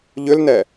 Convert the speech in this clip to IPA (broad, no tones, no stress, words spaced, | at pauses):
ʎʏlnɛ